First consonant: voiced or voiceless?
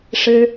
voiceless